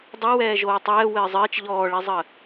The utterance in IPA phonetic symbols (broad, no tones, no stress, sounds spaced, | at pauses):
dˤ o w ɛː ʒ oː tˤ ɛː w ɘː zˤ ɘː t͡ʃ ʎ ɔː ɭ i zˤ ə